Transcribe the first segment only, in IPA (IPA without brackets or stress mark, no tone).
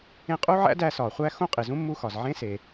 ẽ